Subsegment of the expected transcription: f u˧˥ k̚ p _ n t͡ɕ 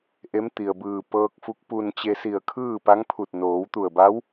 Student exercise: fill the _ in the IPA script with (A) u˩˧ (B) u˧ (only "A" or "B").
B